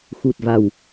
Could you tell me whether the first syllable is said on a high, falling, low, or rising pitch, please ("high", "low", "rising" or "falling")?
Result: low